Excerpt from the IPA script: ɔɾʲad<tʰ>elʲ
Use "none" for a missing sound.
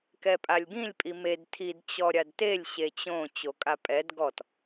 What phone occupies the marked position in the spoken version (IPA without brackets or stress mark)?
t